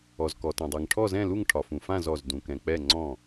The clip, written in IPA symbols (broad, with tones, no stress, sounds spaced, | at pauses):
ɔ˩ z k ɔ˩ t ɛ̃˩ dˤ ɛ˩ ŋ ʈʰ ɔ˥˩ z ɛ̃˥˩ l u˥˩ ŋ ʈʰ ɒ˩ f ũ˩ f ã˥˩ z ɔ˩ z d ũ˩ k ɛ̃˩ k͡p ɛ˥˩ ŋ͡ǀ ɔ̃˥˩